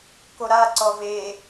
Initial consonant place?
velar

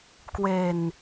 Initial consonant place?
velar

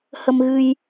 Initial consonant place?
glottal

